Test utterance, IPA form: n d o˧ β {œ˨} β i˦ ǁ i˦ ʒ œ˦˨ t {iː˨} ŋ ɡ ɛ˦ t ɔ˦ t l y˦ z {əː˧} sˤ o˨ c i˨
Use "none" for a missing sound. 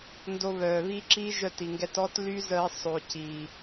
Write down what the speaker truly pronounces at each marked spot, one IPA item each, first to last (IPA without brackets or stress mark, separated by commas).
œː˨, i˨, əː˧